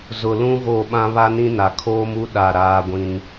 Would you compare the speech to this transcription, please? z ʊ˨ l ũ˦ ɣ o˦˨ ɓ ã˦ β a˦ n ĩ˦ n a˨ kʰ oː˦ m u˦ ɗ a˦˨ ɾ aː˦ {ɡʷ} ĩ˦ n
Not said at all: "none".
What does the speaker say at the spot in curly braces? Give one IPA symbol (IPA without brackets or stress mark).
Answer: ɡʷ